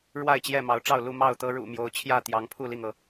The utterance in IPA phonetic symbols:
ɻ w a˥˨ ɪ̯ t͡ɕ j ɛ˥˨ m ɑ˨˦ ʊ̯ ʈ͡ʂ ɑ˥˨ ʊ̯ l u˥˨ m ɑ˥˨ ʊ̯ t̪ ɤ˦ ɻ ṵ˨˩ m j o˨˦ ʊ̯ t͡ɕʰ j ä˥˨ t̪ j ɑ˨˦ ŋ pʰ u˥˨ l i˥˨ ŋ ɤ˩

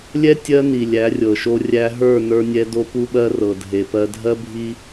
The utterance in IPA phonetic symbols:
lʲ ɛ˦ tʲ ɜ˦ n i˨ lʲ æ˨˦ rʲ ɤ˨ ʃ o˦ rʲ æ˦ ɦ ə˞˦˨ n ə˞˦ nʲ ɛ˦ d o˦ p u˦ ɓ ɜ˦ r ɤ˨ dʱ e˨ p ɜ˦ dʱ ɜ˦ bʱ i˦

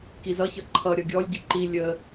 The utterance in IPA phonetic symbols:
k i z ʌ ç ʌ ǃʰ ʌ ɾʲ ʌ ɡʲ ɔ lʲ ɟ ɨ ǃ i lʲ ə

